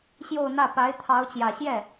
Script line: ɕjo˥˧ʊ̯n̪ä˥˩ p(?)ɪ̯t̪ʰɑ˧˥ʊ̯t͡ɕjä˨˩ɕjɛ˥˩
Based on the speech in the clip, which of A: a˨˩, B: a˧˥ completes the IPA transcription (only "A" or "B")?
B